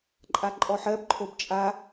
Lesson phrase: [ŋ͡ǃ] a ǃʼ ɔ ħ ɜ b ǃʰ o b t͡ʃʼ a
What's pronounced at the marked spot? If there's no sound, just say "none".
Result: ǃʼ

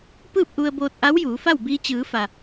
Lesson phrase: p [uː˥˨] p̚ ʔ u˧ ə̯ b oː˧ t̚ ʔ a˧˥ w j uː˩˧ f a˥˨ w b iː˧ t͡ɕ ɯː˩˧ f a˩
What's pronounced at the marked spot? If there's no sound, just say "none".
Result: ɯː˥˨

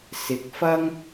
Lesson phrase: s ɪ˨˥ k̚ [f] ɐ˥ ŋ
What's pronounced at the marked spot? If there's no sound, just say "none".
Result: f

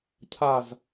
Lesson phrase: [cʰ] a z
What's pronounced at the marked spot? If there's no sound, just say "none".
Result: cʰ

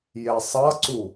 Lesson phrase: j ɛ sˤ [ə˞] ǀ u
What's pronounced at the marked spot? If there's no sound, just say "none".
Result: ʌ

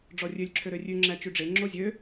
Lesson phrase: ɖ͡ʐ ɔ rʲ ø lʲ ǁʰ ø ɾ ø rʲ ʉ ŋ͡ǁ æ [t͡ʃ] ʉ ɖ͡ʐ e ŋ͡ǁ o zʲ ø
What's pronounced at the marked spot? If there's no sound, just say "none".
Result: t͡ʃ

